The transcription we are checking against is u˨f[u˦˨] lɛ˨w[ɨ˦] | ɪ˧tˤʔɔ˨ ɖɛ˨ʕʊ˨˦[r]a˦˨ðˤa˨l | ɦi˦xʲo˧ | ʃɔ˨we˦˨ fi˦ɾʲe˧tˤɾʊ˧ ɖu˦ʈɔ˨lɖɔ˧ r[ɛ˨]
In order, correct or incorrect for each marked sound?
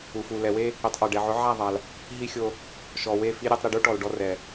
incorrect, incorrect, incorrect, correct

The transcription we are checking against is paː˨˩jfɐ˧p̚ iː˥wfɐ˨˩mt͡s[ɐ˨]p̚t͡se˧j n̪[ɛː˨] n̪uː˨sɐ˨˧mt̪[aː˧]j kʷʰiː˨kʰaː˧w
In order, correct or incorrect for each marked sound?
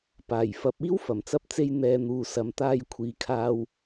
incorrect, correct, correct

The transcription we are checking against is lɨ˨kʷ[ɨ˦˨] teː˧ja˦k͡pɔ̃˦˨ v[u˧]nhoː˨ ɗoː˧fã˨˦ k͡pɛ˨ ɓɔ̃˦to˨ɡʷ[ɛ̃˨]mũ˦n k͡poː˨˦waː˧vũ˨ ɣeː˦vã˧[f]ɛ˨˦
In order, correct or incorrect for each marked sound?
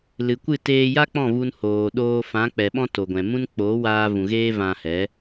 correct, correct, correct, incorrect

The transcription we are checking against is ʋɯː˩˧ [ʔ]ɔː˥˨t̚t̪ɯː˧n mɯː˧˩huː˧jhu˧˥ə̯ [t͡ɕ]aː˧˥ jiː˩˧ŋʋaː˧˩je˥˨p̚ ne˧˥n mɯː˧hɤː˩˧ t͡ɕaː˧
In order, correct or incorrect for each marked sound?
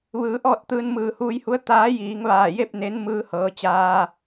correct, incorrect

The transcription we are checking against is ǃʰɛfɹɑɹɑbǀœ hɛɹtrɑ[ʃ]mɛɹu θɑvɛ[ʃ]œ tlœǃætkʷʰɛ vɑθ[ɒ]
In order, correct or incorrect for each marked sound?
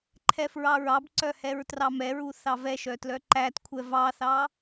incorrect, correct, incorrect

